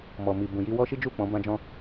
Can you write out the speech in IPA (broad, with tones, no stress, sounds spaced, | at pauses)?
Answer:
m ɔ˨ m i˨ b ũ˨ j i˧ w ɔ˦ ʃ i˦ d͡ʒ u˦˨ k͡p ɔ̃˨˦ b ã˦ d͡ʒ ɔ̃˦